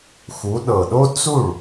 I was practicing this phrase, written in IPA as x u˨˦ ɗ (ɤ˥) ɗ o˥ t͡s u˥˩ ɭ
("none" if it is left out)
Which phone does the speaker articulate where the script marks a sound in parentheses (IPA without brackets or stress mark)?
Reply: ɤ˨˩